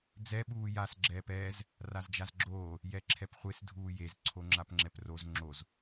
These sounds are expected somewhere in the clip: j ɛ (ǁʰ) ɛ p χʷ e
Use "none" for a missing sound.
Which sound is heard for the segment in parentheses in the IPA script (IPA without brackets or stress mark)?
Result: ǁʰ